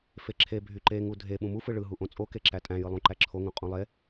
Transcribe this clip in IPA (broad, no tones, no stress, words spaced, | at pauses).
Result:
feǁʰe bʱyǃeŋu dʱe ɓũmufɯ ɭɯɦuʔõ t͡sʼoke ǁætʼæ̃jɯ lˠũǃæǁʰoŋũ qʼũlˠe